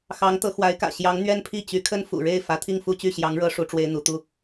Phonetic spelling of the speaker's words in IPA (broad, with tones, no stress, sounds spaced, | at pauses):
x ɑ˧˥ ŋ t̪ ɤ˧˥ x w a˧˥ ɪ̯ k ä̰˨˩ ɕ j ɑ˧˥ ŋ n̪ ɥ ɛ˥ n pʰ i˥˩ t͡ɕ y˧˥ kʰ ə˥ n f ṵ˨˩ ɻ e˥˩ ɪ̯ f ä˧˥ t̪ʰ i˥˧ ŋ f u˥˧ t͡ɕ y˥˩ ɕ j ɑ˧˥ ŋ ɻ ɤ˧˥ ʂ u˧˥ ʈ͡ʂ w e˥ ɪ̯ n̪ u˧˥ t̪ u˥